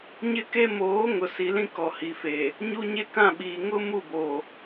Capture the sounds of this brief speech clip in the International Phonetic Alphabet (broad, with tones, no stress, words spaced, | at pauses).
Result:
ɲɪ˦ ke˦ moː˨˦ ŋʊ˨ si˨ lĩ˦kɔ˨hi˨feː˨ | ɲu˦ɲe˦ kã˦˨ɓiː˨ ŋʊ˦ mu˦˨boː˨